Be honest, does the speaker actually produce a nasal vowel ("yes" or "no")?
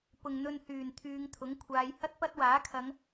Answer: no